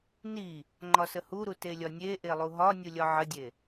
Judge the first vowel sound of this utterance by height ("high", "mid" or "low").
high